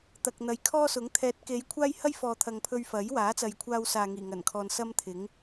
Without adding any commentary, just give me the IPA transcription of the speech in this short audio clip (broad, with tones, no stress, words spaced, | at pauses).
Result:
t̪ɐ˨k̚n̪ɐ˨˧jkʰɔː˥sʊ˨˥ŋ t̪ʰɛː˨˥t̚ke˨˧j kʷʰaː˥jhɐ˥jfɔː˨ t̪ʰɐ˨ŋpʰɵ˧ɥ fɐ˨˥jwaː˨˥t͡sɐ˨jkʷʰaː˧w saː˨ŋiː˨˩ŋɐ˨˩nkʰɔː˨n sɐ˥mt̪ʰɪ˨˥ŋ